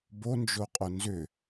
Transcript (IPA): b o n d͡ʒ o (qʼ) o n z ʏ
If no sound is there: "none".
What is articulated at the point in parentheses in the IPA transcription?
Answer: qʼ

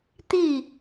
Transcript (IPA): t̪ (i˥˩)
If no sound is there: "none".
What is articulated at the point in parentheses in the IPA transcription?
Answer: i˥˩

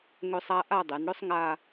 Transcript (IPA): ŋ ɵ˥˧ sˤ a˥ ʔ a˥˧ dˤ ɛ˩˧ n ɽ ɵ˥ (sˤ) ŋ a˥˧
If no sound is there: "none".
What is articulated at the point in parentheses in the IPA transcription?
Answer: sˤ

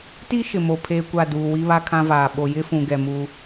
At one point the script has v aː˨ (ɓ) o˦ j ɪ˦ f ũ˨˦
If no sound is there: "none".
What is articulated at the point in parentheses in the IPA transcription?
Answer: ɓ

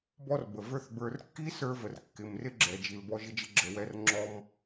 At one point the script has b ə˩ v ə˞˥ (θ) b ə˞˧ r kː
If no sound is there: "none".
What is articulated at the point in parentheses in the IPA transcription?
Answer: θ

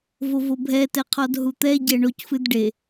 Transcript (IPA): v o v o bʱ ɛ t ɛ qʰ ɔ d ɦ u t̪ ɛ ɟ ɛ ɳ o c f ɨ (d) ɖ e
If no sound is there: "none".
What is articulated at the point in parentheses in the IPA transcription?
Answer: d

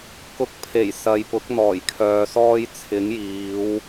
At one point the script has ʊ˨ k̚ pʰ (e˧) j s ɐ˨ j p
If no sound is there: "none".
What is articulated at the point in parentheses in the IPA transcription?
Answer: e˨˩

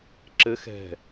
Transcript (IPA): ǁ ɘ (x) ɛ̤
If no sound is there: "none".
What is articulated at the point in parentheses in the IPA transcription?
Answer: x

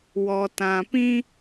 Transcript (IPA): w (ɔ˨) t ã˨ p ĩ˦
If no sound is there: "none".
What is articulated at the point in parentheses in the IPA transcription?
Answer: ɔ˨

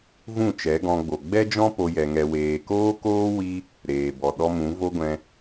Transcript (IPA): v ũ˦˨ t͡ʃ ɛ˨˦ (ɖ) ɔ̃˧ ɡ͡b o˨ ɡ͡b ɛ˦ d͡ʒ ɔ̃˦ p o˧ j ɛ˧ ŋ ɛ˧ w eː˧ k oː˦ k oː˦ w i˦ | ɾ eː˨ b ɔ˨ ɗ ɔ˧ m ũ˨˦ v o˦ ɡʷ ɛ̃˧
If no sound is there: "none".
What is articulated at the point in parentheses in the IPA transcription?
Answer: ɡ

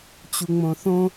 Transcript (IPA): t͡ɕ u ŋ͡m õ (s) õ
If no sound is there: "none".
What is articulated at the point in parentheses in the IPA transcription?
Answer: θ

